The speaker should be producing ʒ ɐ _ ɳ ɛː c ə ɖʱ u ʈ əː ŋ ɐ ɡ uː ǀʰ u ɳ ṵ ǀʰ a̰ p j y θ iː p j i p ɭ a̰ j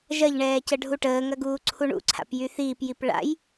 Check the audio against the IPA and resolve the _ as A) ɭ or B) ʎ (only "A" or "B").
B